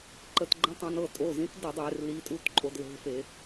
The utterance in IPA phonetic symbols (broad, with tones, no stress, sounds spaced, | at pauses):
ǃ ə˧˩˧ t ɡ͡ǃ ə̃˧˥˧ tˤ õ˧ n ɤ˥˨ tʼ o˩˧˩ z ĩ˨˥ t d ə˧˩˧ dˤ e˧˩˧ r l i˨˥ tʼ u˧˥˧ t ǃʼ o˧ d l e̤˧˥˧ f e˧˩˧